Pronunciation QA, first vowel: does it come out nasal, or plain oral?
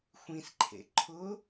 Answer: nasal